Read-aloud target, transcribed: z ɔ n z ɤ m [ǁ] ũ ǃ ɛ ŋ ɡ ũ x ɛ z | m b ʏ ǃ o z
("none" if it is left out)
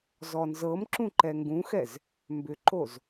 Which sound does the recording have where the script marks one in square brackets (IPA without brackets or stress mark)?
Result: ǁ